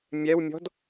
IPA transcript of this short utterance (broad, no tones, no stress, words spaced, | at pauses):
mʲɛwmʲɔ̤d